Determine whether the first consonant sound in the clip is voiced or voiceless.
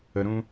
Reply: voiced